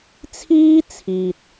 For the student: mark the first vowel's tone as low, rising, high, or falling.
high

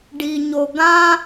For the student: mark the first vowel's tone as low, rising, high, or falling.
low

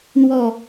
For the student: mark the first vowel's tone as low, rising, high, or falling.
low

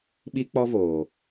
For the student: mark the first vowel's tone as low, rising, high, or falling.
high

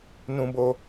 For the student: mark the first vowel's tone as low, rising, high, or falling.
high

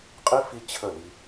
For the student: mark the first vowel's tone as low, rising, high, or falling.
high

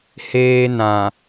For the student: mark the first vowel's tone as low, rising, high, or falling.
high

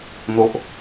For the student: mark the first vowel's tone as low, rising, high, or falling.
low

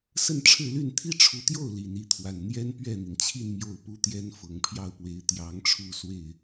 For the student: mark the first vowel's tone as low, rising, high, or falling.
falling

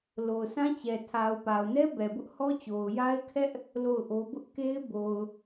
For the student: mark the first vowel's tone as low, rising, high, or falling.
low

